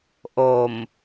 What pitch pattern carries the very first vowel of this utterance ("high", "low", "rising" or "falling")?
low